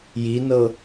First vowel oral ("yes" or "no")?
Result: yes